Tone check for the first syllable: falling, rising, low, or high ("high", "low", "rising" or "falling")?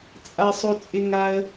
high